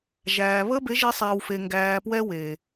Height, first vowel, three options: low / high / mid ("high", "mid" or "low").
low